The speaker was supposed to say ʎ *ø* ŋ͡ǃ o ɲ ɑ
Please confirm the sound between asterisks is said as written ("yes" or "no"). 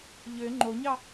yes